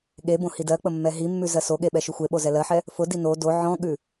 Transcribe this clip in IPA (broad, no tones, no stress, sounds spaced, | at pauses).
ɠ e b õ h i d ɜ k͡p ə mː ɛ ɦ i mː ʉ z ɜ s o ɠ e ɓ ɛ ʃ ʉ xʷ e ɓ o z ɛ l ɜ ħ ɛ | f ʊ d i n o d o ʕ ɔ̃ ɠ ʉ